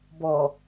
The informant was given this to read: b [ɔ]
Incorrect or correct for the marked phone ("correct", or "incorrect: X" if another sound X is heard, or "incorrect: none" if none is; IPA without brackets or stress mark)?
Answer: correct